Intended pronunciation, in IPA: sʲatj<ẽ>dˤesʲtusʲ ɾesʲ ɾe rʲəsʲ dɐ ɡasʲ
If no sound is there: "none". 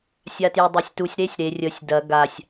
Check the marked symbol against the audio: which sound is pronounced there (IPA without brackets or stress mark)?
e